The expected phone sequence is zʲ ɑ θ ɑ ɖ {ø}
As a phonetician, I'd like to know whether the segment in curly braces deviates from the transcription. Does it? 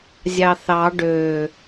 no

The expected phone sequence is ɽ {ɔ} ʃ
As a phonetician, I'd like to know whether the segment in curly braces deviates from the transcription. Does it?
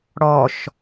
no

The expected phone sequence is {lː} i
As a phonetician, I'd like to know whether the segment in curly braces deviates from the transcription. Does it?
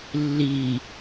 no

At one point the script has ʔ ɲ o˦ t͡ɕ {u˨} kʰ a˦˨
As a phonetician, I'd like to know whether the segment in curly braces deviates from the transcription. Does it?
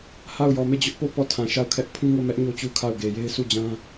yes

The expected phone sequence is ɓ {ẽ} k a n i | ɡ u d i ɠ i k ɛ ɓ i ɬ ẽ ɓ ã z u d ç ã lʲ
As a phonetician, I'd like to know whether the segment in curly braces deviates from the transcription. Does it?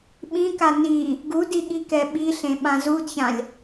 yes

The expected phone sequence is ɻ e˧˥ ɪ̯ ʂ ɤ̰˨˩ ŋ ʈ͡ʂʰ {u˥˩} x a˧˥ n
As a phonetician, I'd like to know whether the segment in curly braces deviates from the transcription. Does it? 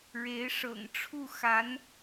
no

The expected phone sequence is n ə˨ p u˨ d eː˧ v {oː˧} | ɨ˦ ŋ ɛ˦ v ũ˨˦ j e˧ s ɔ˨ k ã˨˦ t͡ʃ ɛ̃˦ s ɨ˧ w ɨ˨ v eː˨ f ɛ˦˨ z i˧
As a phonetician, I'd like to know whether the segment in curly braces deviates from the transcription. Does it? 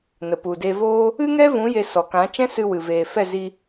yes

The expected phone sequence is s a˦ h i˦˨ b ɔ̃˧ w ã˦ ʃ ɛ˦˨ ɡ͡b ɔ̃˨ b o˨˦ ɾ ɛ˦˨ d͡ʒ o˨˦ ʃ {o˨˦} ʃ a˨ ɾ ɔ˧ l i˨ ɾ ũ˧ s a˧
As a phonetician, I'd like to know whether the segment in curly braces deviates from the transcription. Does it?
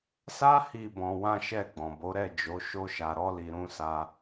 yes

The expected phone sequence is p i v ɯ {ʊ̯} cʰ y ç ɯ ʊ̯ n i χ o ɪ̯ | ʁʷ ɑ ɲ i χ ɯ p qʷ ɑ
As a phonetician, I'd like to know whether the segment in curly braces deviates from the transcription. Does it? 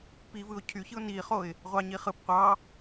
no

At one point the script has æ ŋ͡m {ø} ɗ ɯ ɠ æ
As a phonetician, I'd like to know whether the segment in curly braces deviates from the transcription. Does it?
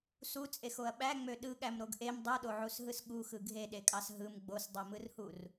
no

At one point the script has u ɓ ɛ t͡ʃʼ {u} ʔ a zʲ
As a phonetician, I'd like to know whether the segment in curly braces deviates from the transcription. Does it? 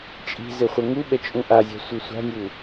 yes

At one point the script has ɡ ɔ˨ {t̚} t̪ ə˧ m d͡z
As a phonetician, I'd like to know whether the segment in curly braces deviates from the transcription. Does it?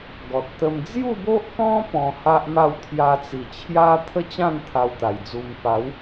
no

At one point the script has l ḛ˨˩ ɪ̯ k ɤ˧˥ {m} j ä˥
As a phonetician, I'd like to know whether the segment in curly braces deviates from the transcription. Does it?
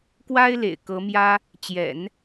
no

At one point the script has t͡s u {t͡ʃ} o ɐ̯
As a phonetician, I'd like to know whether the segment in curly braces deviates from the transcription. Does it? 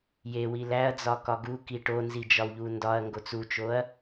no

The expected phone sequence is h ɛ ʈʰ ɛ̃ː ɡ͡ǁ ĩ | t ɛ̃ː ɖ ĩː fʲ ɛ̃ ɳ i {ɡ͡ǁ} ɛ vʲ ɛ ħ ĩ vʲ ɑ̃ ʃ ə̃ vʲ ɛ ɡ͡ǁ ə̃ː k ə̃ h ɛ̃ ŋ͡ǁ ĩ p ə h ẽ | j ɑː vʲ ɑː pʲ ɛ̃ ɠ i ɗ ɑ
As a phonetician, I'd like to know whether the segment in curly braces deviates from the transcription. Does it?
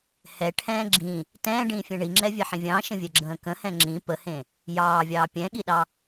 yes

